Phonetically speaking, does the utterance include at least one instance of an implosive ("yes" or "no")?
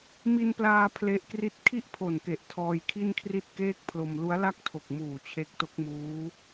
no